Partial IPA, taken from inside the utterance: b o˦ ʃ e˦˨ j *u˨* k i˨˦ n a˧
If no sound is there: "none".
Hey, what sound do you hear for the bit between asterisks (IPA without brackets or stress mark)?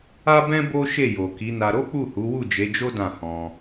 o˨